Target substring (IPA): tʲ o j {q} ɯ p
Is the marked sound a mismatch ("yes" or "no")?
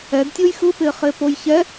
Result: yes